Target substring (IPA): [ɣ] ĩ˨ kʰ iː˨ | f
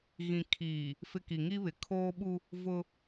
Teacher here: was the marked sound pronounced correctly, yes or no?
yes